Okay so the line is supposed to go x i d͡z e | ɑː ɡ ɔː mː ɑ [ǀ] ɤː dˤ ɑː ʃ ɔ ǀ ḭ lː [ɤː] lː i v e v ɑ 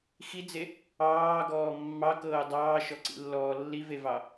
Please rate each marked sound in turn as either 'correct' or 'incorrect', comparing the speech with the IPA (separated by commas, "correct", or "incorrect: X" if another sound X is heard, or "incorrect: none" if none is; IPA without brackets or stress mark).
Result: incorrect: k, incorrect: ɔː